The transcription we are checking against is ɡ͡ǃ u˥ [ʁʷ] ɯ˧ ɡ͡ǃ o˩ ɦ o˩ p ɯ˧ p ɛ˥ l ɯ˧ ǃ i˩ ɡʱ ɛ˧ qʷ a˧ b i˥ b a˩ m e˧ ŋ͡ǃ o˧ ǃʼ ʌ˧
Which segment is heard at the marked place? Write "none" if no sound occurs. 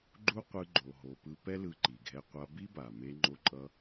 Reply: qʷ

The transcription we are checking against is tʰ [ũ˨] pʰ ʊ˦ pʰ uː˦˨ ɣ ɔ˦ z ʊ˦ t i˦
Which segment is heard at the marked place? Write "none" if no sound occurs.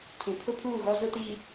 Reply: ũ˨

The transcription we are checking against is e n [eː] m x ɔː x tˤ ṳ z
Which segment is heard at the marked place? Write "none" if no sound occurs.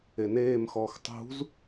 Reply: eː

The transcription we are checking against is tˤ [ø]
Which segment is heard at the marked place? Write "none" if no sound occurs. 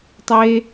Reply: e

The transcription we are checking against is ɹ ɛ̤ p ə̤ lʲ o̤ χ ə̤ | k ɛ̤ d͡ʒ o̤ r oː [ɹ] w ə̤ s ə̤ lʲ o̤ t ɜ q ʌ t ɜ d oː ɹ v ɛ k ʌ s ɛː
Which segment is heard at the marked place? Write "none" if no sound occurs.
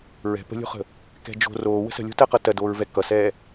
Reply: none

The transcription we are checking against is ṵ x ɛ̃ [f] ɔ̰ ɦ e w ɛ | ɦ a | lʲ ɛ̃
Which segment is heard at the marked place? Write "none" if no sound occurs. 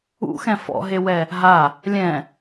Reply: f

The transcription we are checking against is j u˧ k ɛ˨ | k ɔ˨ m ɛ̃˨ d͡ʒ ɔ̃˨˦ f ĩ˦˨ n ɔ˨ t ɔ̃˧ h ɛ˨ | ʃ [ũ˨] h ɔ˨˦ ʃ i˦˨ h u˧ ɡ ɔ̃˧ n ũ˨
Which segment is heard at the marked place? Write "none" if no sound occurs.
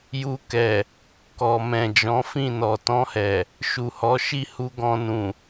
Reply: u˨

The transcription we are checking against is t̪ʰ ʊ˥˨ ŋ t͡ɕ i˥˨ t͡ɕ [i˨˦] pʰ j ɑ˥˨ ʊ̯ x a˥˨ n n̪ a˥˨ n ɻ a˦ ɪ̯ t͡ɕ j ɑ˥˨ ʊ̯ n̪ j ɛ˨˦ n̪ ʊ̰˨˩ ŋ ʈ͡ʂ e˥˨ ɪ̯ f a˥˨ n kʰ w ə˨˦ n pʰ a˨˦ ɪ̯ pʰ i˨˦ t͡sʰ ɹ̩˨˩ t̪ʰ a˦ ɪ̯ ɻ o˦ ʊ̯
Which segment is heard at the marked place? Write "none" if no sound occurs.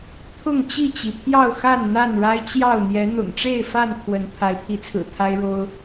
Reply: i˩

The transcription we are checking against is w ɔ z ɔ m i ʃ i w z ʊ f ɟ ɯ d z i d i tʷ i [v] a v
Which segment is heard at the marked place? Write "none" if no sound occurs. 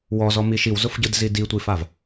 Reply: f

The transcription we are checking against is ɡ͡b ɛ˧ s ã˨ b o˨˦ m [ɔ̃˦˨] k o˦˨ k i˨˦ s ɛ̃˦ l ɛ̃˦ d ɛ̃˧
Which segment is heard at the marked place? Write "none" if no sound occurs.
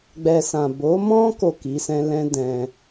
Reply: ɔ̃˦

